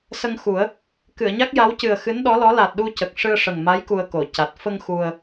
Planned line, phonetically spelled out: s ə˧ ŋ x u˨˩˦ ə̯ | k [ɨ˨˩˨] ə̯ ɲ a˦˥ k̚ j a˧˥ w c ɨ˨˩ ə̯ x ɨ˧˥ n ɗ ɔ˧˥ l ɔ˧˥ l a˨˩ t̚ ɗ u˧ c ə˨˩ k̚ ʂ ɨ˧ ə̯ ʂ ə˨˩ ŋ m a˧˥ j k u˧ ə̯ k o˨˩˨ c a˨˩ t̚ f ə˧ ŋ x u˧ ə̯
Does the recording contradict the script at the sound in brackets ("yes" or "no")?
no